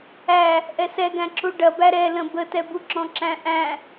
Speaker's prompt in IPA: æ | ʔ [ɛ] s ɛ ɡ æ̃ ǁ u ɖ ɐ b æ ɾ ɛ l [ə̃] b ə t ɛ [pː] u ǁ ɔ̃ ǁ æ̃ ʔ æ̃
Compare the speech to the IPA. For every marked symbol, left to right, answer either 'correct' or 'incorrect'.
correct, correct, incorrect: b

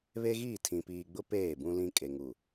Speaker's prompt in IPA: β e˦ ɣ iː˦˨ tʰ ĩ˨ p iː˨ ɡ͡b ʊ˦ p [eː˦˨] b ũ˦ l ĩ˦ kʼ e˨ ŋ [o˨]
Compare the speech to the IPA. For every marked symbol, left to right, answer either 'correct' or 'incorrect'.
correct, incorrect: u˨

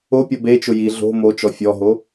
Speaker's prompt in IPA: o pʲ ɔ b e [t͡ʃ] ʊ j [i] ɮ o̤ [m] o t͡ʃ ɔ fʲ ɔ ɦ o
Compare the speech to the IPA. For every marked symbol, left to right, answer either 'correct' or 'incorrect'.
correct, correct, correct

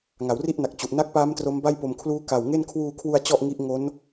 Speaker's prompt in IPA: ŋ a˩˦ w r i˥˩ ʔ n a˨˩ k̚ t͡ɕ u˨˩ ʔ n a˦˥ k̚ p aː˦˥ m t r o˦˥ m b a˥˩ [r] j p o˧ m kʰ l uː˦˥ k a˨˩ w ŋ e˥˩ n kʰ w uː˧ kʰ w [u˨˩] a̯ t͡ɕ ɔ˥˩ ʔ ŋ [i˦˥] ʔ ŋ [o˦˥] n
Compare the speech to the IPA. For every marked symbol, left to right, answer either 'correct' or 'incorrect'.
incorrect: none, incorrect: u˧, correct, correct

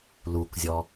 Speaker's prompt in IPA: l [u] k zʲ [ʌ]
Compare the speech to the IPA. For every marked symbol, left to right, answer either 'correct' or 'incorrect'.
correct, incorrect: ɔ

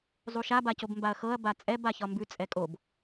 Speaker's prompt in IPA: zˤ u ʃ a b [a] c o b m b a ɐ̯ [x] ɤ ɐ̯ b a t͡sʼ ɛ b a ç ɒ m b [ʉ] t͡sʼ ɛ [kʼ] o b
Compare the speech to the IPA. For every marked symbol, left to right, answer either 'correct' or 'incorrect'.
correct, correct, correct, correct

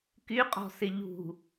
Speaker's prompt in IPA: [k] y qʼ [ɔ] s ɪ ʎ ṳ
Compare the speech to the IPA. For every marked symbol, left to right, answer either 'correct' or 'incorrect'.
correct, incorrect: ɔ̤

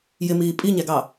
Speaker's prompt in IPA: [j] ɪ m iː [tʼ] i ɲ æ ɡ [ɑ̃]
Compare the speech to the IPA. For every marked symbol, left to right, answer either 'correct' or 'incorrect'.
correct, incorrect: pʼ, incorrect: ɑ

